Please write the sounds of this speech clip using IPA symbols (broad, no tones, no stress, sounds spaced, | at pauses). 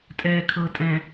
tʼ ɛː kʰ ɤ tʼ ɛ̃